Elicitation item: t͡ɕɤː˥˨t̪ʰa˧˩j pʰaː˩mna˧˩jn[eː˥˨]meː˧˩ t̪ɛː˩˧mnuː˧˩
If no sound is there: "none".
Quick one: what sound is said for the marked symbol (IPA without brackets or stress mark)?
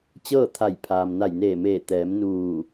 eː˧˩